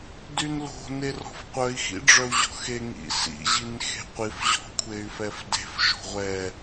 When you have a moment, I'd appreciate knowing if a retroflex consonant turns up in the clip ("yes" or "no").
yes